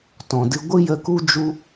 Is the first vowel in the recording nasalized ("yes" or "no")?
yes